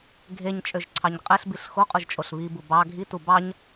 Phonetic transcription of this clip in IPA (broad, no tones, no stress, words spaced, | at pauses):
ɡʱeɲt͡ʃʼøʒǀʰɑɲ qʼeɬbiɬ xoqʼuʒt͡ʃʼoɬ βibu bɑ ɡʱitu bɑɲ